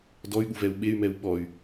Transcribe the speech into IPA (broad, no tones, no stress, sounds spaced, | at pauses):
d ɔ y̯ ɠ u v ɛ u̯ ɓ e y̯ m ɛ u̯ ɓ ɔ y̯